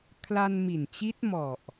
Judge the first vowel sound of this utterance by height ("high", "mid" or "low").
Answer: low